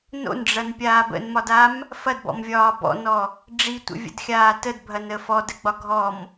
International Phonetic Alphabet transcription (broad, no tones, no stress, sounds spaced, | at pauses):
n o̰ n ɖ͡ʐ ɐ n pʲ aː b ə̰ n m ɒ d a m | f ɐ d b ɔ̰ m vʲ ɒː b ɔ̰ n ɔ | ɖ͡ʐ i tʷ ə̰ vʲ ə̰ d xʲ aː t ə d bʱ ɐ n ə f ɔ d ə ɡ͡b ɒ ɡʱ ɔ m